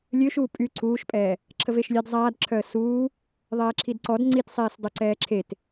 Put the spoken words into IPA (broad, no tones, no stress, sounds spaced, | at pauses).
lʲ ø ʃ uː pʼ y ǀʰ uː ʃ pʼ ɛː | ǁʰ ə v e ʃ lʲ ɛ d zˤ aː d ǁʰ œ ə̯ s uː | ðˤ ɛː ǁʰ i d ǀ ɔ d ŋ͡ǀ i t sˤ eː s dˤ o ǀ ɛː ǁʰ e t